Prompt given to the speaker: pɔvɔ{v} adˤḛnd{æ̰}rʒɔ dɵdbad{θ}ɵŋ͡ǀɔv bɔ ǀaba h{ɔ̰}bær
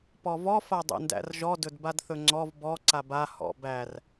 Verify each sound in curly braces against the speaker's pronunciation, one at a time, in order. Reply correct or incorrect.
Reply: incorrect: f, correct, correct, correct

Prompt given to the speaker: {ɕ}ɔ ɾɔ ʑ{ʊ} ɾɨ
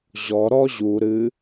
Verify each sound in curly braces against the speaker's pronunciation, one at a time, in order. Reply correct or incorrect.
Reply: incorrect: ʑ, incorrect: u

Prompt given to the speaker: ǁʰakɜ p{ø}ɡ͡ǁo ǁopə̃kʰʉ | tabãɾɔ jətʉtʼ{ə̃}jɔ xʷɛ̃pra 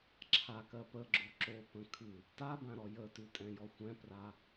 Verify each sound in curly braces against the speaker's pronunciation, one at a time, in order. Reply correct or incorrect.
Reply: incorrect: ə, incorrect: ɛ̃

